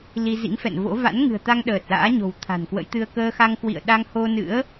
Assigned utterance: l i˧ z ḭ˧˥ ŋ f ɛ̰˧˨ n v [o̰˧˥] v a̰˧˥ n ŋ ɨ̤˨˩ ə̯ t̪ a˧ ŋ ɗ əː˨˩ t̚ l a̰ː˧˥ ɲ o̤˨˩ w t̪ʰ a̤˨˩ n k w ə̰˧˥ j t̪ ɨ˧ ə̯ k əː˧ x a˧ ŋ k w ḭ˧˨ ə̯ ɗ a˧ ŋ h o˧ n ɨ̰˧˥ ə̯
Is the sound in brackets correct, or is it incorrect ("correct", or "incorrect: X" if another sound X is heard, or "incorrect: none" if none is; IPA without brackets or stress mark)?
correct